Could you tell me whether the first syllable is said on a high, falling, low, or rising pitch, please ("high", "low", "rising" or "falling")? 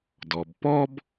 low